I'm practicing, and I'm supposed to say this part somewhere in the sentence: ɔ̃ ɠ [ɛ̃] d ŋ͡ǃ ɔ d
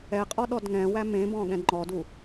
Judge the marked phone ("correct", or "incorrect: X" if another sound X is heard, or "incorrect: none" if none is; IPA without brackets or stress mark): correct